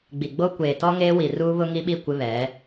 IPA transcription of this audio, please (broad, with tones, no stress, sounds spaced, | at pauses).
ɡ͡b i˨ ɡ͡b o˦ kʷ eː˨ t ɔ˦ ŋ eː˦ w i˨ r uː˦ β ʊ˦ ŋ i˦ ɓ i˦˨ kʷ ɪ˦ β ɛ˨˦